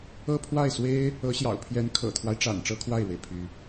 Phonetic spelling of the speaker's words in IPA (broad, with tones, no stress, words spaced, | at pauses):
ɤ˥˧ pʰwa˥˩ɪ̯swe˥ɪ̯ | ɤ˧˥ɕjɑ̰˨˩ʊ̯pʰjɛ˧˥n kʰɤ̰˨˩t̪ʰwa˦ɪ̯ʈ͡ʂa̰˨˩n ʈ͡ʂɤ˥kʰwa˥˩ɪ̯ɻwe˩ɪ̯ pʰy˥